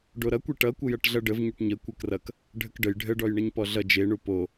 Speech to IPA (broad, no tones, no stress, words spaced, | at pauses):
ɖoɾʌkʷɛ ʈʌkʷə jʌʈɮʌɖəv ɲʌʈɲə kʷəkrʌk | ɖʱəkɖəj ɖʱəɖɔj ɳʌɲpɔɮʌ d͡ʒeɳu po